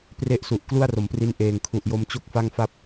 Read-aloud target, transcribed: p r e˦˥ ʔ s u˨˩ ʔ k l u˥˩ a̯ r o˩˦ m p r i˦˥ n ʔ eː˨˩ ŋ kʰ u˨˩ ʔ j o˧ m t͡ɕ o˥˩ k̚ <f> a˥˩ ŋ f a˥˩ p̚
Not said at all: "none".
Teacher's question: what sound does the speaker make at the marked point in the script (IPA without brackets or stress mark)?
f